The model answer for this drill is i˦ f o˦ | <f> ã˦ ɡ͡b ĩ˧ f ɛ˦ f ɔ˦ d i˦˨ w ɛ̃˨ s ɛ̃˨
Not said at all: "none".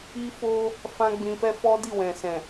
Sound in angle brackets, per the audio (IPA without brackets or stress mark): f